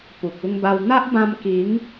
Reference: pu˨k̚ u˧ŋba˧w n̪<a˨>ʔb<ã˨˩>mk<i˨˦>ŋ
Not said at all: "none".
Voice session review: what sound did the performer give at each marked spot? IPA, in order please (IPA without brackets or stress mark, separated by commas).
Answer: a˦, ã˧, i˨˦